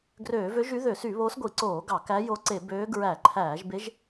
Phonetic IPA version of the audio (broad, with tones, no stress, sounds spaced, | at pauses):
ɡ r øː˧˩˧ v ø˧˥ ʒ y˧˥ ð ø˧˩˧ s y˧˩˧ β o˧˥ s ɡʷ i˧˩˧ ǀ oː˧˩˧ ɡ ɑ˧˩˧ k æ˧˥ j o˧˥ ǀ e˧˩˧ b øː˧˥ ɡ ɹ æ˧˩˧ ǃʰ æː˧˩˧ ʒ b e˧˥ ʒ